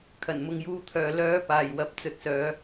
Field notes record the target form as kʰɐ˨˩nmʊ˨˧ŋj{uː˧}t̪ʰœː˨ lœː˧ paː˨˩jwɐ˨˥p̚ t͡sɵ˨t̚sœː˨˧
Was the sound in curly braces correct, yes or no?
yes